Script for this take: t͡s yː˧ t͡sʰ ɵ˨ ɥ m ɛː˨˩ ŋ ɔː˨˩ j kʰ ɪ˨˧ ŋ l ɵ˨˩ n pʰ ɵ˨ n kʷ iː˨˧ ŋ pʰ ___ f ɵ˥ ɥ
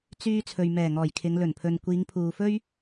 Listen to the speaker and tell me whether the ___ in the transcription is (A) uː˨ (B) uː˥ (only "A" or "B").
A